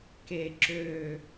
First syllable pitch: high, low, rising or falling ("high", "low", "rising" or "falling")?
low